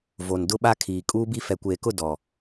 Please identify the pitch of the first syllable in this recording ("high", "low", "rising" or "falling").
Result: low